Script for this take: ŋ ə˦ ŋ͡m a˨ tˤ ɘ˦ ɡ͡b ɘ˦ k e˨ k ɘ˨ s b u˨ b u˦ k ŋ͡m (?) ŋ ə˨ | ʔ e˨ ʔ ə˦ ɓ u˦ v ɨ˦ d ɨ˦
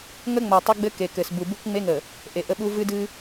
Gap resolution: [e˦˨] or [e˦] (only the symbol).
e˦